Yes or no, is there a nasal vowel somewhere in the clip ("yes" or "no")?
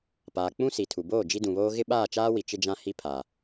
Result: yes